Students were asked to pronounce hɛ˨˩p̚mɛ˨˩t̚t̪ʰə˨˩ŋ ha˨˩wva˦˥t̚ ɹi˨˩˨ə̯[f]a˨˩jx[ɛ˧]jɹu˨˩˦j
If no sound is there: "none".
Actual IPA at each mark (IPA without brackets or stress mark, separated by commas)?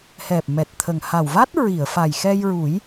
f, ɛ˧